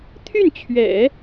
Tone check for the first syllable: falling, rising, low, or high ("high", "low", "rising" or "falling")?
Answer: falling